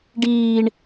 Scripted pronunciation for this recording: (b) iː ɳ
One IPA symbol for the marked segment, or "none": ɖ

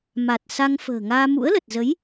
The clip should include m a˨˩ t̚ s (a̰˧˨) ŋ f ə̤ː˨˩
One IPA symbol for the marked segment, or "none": a˧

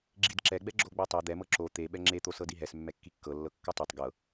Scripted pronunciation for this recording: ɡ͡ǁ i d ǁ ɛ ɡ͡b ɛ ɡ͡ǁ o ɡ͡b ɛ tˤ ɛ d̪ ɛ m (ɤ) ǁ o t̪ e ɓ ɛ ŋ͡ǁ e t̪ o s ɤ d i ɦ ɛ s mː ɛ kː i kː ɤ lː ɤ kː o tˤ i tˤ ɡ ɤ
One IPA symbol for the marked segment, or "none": ɤ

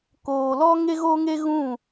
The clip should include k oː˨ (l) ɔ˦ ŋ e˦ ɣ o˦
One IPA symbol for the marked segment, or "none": l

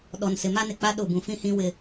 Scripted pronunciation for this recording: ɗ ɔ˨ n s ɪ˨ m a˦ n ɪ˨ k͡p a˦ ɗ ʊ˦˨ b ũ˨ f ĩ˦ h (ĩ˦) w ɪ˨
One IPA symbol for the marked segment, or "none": ĩ˦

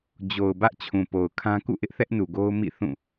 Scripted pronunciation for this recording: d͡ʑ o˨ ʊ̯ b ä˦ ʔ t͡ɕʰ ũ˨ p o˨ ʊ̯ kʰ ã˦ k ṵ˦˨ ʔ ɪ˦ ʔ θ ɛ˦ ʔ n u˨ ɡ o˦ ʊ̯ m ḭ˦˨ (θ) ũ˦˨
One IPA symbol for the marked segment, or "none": θ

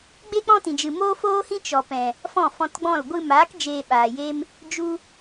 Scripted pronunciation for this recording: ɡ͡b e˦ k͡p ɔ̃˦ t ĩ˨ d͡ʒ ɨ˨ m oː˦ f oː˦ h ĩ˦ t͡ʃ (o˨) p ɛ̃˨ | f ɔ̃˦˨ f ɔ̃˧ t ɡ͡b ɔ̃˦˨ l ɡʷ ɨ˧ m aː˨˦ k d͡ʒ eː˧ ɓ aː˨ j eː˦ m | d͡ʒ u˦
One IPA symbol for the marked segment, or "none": ɔ˨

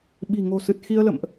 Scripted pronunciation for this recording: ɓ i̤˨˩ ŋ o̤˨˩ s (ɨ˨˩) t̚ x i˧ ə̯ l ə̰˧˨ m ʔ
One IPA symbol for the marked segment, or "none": ɨ˨˩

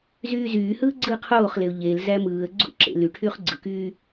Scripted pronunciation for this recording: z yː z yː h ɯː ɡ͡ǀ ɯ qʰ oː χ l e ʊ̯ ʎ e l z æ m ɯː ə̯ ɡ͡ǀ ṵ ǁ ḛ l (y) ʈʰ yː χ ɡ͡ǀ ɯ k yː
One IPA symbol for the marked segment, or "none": y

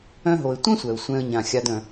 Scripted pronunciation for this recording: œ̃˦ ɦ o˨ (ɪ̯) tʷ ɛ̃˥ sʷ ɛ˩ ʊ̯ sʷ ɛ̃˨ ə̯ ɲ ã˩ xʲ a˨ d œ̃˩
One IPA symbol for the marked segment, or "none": ɪ̯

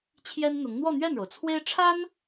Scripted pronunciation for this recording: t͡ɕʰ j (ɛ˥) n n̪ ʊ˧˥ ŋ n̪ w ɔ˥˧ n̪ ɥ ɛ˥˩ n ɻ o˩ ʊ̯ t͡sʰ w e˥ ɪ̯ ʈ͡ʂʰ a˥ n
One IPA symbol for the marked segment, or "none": ɛ˥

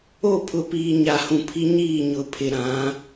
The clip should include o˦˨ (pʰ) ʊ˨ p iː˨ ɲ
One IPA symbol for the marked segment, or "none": pʰ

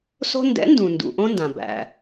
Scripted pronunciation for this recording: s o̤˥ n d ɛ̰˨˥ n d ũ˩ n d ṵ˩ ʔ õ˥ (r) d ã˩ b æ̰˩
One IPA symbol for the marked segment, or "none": n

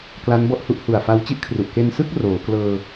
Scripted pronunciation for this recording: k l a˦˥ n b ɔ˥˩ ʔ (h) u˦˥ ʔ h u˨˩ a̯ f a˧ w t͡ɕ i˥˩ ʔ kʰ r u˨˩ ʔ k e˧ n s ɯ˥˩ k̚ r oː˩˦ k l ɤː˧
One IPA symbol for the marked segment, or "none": h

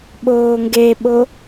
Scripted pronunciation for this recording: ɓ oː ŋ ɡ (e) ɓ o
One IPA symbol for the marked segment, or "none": e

